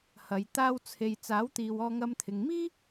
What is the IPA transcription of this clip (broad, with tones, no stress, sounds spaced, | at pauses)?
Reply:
h ɐ˨˧ j t̪ aː˧ w t͡sʰ e˨ j t͡s aː˨˥ w t̪ iː˨ w ɔː˧ ŋ ɐ˧ m t̪ʰ ɪ˨ ŋ m iː˥